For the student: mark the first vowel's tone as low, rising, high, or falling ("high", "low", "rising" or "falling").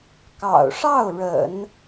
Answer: low